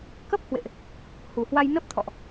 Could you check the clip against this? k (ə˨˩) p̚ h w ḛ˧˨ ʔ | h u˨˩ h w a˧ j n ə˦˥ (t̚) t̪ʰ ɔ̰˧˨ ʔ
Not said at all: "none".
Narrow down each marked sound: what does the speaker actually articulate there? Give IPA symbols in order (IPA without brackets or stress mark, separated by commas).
ə˦˥, p̚